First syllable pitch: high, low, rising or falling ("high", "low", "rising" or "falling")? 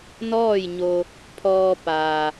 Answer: falling